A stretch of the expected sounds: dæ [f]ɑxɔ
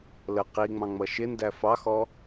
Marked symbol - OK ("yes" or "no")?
yes